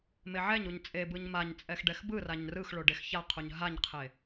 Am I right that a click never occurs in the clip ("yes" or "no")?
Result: yes